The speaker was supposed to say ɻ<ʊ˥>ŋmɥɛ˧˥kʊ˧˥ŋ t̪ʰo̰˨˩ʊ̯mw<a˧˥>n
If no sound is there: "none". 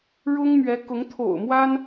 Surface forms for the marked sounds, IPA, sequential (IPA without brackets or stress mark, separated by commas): ʊ˥, a˥